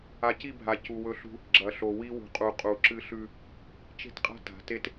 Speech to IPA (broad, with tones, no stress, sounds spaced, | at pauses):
a˨ c i˦˨ bʱ a˨ c u˨ w ɵ˦ ɬ ṳ˦ | ɡ͡ǁ ɐ˨ ɬ o˨ w i˦ w ṳ˨ qʼ u˨ qʼ u˨ ǁ ɨ˦ ɬ ʉ˦ | t͡ʃ e̤˦ t qʼ a̤˦ t a̤˨˦ t e˦ t